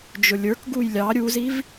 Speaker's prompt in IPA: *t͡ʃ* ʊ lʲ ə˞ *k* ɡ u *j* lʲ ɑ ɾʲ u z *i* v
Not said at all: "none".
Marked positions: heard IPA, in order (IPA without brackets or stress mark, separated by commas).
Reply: d͡ʒ, k, j, i